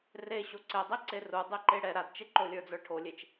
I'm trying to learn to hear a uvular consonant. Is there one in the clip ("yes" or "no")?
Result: no